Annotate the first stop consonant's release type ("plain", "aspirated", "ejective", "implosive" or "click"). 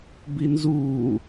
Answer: plain